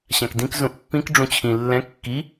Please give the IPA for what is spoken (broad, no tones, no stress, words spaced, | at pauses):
ɕãkdĩk zũʔpːĩk ɖ͡ʐũt͡ɕʰĩ lːɛ̃ kːi